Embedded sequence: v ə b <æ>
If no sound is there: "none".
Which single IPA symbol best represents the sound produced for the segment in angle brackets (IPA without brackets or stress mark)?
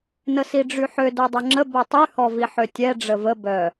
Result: œ